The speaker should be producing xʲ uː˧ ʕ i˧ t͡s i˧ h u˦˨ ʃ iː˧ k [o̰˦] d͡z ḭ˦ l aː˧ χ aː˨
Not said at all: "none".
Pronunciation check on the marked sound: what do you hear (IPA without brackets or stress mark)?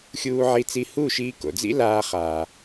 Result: o̰˨